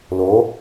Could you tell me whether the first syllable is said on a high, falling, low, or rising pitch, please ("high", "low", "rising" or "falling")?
rising